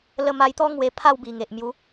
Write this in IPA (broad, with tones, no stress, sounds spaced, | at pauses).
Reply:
l ə˧ m a˧ j t̪ ɔ˦ ŋ w e˧ pʰ a˥˧ w b i˨˩ ŋ e˨ ʔ m j u˨˦